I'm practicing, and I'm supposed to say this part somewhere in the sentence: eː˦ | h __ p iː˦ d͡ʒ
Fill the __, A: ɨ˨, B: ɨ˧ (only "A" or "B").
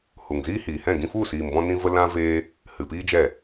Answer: A